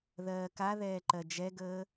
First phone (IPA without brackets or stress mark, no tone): ð